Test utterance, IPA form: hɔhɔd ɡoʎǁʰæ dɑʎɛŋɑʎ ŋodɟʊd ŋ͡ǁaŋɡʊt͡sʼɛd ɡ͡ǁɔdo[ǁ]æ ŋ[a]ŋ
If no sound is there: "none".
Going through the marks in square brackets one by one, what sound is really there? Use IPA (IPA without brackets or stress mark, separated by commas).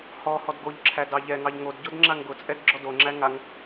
ŋ͡ǁ, a